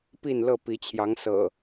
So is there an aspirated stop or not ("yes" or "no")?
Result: yes